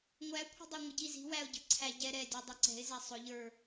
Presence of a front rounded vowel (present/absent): absent